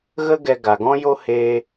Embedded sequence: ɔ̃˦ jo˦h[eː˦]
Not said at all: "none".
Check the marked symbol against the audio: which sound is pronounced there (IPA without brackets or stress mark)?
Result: eː˧